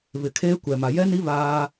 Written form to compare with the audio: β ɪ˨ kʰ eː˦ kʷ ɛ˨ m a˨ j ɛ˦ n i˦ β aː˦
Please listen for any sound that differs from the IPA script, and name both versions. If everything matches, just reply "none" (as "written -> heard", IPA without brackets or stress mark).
none